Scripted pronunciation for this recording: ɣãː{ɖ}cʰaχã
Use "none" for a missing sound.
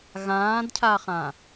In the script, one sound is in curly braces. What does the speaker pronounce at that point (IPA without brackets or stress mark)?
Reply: d